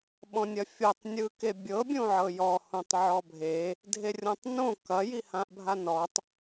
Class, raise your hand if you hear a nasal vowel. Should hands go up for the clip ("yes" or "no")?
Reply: yes